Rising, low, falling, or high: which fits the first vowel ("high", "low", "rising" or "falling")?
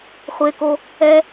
low